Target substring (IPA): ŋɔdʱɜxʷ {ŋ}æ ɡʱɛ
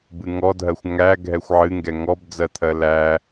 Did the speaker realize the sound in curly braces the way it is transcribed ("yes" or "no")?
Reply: yes